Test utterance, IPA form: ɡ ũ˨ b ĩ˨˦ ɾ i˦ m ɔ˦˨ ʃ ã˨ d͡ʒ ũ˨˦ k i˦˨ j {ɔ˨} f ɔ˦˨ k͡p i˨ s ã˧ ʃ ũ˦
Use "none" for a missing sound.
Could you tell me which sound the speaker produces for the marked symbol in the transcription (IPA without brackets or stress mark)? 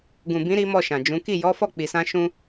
ɔ˨˦